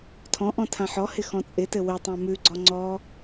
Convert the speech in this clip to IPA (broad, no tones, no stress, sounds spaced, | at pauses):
tʰ ɔ̃ ʔ ɔ̃ tʰ ã ħ ɔ h ɪ x ɔ̃ t͡sʼ ɪ t ɘ w ɪ tˤ ã m ʉ ɡ͡ǀ ɔ ŋ͡ǀ ɔ